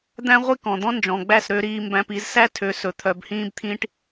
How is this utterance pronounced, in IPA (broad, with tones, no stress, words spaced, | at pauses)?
d̪æ̃˦ʁʷi˦ kɔ̃˧ d̪ɔ̃˦nd͡ʒɔ̃˨ɡ͡bæ˦˨s ɾø˦ɾiː˦mbæ̃˦p i˧zsæ˦tʰø˨˦sɵ˨ t̪ʰœ˨˦bhĩː˦bt̪ʰĩ˦ʈ